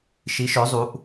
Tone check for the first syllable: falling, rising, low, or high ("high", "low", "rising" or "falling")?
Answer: rising